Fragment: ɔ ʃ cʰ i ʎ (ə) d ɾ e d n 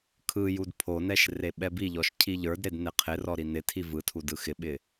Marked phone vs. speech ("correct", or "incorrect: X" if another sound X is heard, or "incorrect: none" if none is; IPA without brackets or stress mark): incorrect: ə˞